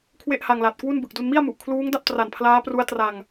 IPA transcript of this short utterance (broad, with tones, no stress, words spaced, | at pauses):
kʰwe˥˩ʔha˧ŋla˨˩t̚kwu˥˩n bɯ˨˩k̚du˧nmi˥˩a̯mu˨˩ʔ kʰluː˦˥ŋda˥˩p̚tra˨˩n pʰlaː˦˥pru˦˥a̯ tra˧ŋ